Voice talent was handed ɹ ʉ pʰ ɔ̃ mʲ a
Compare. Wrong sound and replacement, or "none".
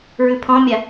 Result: none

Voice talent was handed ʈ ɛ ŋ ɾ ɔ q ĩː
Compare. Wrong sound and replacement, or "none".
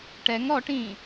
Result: q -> ʈ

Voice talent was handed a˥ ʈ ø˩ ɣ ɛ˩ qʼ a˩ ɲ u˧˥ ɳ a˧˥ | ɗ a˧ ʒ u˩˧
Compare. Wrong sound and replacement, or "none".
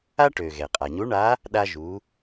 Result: none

